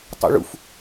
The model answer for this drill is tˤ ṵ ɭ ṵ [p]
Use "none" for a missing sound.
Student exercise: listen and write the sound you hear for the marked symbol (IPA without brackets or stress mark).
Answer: f